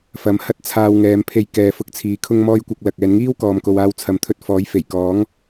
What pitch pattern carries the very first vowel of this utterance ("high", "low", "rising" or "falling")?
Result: rising